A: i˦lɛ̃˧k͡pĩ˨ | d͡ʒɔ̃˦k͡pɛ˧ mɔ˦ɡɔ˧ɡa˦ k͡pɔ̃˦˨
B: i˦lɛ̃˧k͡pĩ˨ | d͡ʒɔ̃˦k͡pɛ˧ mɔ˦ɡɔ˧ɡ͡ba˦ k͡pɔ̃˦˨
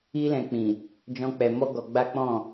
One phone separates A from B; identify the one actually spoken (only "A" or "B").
B